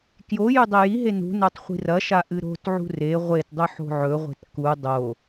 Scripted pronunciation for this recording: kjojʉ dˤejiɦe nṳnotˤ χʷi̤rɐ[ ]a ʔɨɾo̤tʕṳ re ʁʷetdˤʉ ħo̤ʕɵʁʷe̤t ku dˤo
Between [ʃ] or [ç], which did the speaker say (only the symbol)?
ʃ